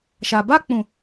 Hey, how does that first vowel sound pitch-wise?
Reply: low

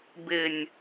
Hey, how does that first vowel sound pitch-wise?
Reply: low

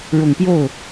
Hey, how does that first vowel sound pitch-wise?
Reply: low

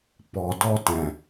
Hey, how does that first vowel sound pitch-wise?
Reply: low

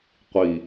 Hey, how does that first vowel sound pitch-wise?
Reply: low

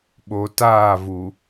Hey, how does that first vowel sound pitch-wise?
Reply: low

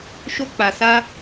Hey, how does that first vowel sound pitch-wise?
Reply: high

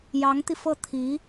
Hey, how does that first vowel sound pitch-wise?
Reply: rising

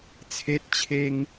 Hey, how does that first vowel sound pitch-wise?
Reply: high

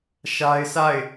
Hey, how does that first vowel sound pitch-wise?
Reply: high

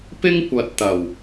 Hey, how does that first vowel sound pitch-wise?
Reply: high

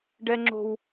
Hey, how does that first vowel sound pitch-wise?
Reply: high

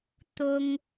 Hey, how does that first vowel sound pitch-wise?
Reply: high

